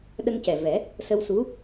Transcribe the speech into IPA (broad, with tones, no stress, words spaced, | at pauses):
ɗə˧ŋcɛ˨˩vɛ˨˩˦ | sə˧w su˧˥